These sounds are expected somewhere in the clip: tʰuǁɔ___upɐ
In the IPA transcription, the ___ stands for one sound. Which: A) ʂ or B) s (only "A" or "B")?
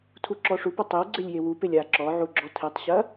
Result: A